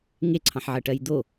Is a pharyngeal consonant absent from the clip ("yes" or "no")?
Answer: no